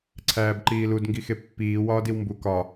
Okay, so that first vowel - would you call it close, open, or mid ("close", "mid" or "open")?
open